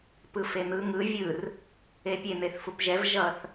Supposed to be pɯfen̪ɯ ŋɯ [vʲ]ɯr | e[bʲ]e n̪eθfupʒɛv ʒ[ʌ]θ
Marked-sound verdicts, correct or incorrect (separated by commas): correct, incorrect, correct